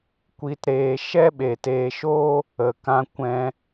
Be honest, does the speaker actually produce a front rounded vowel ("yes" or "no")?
no